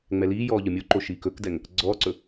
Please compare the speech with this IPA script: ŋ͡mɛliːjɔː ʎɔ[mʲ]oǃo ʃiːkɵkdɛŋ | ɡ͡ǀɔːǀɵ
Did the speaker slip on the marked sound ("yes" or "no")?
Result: no